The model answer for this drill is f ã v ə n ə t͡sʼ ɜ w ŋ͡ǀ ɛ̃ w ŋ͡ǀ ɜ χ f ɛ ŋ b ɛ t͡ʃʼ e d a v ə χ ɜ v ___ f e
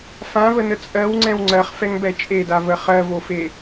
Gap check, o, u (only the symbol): o